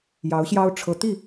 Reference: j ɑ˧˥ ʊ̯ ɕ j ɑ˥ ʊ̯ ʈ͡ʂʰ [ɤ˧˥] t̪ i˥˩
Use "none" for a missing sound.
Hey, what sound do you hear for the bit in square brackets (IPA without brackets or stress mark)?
ɤ˧˥